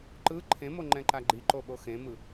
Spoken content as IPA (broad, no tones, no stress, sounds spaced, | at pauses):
ǃ ɯ ǃʰ ẽ m o ŋ͡ǃ ɛ̃ ǃ a ɡ͡ǃ i ǃ o ɓ o x ẽ m ɯ